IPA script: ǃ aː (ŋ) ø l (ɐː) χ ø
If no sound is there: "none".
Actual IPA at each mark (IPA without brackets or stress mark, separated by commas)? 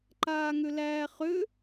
ŋ, æː